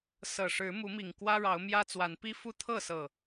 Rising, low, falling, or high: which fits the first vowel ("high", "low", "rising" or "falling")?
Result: low